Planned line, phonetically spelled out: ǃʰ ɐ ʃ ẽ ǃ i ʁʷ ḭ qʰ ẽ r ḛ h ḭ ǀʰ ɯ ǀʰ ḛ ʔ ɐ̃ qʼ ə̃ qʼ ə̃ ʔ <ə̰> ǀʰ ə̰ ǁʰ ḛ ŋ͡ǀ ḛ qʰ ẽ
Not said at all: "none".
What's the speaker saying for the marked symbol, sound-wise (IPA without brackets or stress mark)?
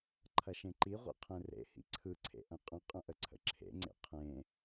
ə